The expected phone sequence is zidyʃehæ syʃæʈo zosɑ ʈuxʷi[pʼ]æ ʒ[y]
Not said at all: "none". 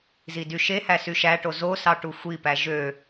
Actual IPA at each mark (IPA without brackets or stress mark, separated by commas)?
p, ø